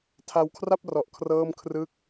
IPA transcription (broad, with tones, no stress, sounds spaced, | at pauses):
tʰ a˧ w kʰ r a˥˩ p̚ r ɔ˨˩ ʔ kʰ r ɤː˥˩ m kʰ r ɯ˥˩ k̚